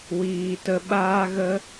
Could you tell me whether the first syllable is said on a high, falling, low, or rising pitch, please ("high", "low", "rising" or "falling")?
low